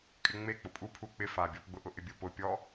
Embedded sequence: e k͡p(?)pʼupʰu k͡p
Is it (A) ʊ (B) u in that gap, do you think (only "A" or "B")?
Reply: A